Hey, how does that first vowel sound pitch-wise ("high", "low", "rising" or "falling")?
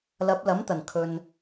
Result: rising